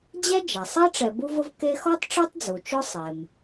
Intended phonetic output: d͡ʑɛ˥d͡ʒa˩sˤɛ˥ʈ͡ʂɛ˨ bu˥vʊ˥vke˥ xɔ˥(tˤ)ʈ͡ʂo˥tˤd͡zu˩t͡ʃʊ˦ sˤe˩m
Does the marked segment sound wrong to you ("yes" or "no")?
no